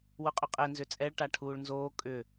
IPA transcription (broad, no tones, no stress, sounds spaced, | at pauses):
w ʊ qʼ ʏ qʼ ɛ n z ʏ t͡sʼ ɛ ɭ ʈ a ʈʰ uː ɭ n z oː kʼ ʏ